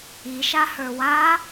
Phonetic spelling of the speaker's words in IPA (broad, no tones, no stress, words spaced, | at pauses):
iʃahə˞ wa